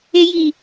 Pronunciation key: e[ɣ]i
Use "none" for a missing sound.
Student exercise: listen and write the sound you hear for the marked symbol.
j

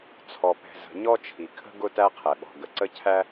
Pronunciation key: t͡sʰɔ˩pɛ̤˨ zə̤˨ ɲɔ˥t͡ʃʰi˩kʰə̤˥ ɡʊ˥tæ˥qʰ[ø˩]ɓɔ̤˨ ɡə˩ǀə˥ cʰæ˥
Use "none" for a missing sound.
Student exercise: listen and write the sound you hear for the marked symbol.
ɛ˩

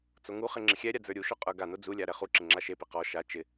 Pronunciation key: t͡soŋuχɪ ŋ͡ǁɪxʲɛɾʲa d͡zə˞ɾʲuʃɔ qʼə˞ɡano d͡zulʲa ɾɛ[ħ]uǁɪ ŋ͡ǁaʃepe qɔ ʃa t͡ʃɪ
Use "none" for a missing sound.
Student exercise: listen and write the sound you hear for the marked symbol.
χ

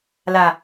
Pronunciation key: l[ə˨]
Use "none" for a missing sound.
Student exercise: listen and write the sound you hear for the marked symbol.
a˨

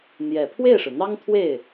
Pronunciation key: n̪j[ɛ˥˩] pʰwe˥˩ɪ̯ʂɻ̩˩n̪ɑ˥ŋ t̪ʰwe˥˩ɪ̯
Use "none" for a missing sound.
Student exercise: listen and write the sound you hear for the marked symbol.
ɛ˨˩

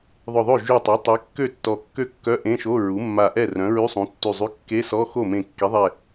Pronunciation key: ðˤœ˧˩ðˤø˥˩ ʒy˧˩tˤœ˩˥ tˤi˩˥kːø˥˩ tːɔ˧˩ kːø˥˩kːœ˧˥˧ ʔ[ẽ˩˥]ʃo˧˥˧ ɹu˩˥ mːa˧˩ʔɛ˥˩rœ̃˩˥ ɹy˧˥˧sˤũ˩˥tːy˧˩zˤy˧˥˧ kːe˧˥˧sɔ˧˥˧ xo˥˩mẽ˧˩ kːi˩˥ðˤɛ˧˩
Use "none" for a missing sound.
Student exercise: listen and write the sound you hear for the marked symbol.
ẽ˧˥˧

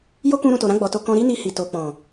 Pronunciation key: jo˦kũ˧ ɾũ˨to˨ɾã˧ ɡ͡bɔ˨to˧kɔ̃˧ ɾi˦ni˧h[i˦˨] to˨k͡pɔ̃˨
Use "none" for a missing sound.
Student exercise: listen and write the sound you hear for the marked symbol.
i˨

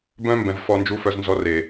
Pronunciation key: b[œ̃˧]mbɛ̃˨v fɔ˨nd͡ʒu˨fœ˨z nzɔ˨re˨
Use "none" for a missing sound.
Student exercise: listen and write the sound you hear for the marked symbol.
œ̃˧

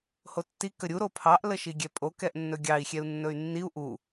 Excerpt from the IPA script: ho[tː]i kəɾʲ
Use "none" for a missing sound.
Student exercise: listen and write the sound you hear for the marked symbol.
tː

